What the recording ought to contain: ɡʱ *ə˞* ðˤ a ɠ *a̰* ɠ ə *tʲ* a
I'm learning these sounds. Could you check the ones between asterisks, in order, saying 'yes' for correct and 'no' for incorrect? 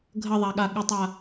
no, no, no

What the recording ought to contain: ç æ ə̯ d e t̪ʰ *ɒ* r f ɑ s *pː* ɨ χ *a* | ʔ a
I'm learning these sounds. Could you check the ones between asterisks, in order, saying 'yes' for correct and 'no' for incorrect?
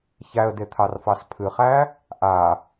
no, no, no

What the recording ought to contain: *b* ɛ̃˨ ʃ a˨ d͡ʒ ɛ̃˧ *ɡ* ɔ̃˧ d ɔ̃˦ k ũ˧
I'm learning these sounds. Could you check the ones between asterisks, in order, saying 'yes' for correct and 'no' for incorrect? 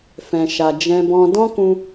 no, no

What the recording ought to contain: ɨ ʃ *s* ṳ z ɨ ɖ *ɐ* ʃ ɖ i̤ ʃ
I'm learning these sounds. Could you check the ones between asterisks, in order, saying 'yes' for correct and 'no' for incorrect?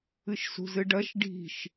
yes, yes

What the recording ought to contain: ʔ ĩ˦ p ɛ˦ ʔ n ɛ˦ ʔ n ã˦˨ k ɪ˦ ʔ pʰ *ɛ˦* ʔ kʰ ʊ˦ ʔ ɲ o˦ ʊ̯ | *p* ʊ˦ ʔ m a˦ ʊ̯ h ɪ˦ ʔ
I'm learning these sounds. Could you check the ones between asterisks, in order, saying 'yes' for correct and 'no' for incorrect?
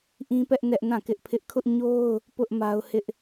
no, yes

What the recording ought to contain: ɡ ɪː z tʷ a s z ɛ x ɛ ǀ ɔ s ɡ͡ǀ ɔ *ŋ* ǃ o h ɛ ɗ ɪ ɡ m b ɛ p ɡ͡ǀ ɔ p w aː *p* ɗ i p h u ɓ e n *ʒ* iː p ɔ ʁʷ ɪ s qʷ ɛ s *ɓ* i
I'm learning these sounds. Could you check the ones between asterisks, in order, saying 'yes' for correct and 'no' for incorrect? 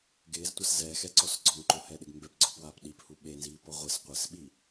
yes, yes, no, yes

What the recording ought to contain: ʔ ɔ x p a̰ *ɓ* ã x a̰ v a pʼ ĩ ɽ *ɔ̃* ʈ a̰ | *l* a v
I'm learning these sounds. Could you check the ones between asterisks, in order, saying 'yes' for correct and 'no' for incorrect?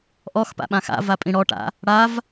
yes, no, no

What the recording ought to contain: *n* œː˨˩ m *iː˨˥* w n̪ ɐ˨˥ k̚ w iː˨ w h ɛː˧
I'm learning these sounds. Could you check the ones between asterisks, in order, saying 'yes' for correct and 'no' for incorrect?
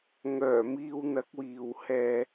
no, no

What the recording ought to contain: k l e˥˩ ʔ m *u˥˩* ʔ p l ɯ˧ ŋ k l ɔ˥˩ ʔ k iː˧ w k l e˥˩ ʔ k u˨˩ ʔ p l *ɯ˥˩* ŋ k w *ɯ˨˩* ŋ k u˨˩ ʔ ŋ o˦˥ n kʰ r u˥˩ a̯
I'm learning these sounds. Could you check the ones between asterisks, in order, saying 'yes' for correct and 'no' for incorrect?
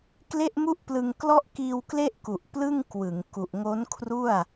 yes, yes, no

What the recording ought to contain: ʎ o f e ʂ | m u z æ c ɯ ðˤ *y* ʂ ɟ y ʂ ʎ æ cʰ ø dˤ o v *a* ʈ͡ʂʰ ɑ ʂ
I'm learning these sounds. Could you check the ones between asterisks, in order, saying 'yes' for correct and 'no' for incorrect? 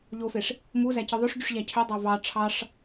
no, no

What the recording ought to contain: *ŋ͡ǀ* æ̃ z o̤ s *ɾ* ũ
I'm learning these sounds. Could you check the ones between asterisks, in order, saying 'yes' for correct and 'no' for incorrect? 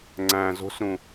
yes, yes

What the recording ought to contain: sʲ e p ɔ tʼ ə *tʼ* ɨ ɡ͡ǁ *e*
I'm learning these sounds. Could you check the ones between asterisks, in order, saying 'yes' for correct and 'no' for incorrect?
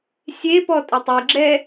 no, no

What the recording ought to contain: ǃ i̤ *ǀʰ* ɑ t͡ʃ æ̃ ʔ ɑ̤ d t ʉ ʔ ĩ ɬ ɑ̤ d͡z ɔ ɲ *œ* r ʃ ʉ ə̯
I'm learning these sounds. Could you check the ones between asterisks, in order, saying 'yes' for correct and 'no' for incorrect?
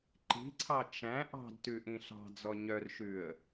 yes, yes

